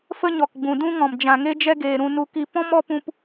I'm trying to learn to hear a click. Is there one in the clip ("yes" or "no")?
no